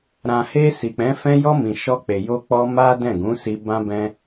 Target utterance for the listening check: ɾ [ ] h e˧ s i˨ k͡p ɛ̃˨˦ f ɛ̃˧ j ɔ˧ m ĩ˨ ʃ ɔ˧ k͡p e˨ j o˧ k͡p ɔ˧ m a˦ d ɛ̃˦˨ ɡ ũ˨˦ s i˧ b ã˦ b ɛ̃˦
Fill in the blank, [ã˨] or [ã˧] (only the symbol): ã˨